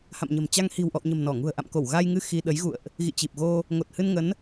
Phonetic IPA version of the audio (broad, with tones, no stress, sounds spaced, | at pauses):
h a̰˧˨ m ɲ ə̤˨˩ m t͡ɕ a˧ ŋ h i̤˨˩ w ʔ ɔ̰˧˨ w ɲ ə̤˨˩ m n ɔ˧˩ ŋ ṳ˨˩ ə̯ ʔ a̰˧˨ m k o˧˩ w ɣ a˧ j ŋ ɨ˧ x i˧ ɗ ə˨˦ j ɣ ṵ˧˨ ə̯ ʔ | ɣ ḭ˧˨ t͡ɕ i˨˩ p̚ ɣ o˧ | ŋ o˨˩ t̚ h ɨ˧ n ŋ ə˨˦ n